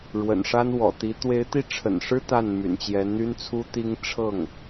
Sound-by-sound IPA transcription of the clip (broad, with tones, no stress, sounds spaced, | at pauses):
ɻ w ə̰˨˩ n ʂ a˥ n w ɔ̰˨˩ t̪ i˧˥ t̪ w e˧˥ ɪ̯ t̪ i˥˩ ʈ͡ʂʰ ə̰˨˩ n ʂ ɻ̩˥ t̪ a˥˩ n m y̰˨˩ n t͡ɕ j ɛ˧˥ n n̪ y˥ n t͡sʰ u˥ t̪ i˥ ŋ ʈ͡ʂʰ ɤ˥˩ ŋ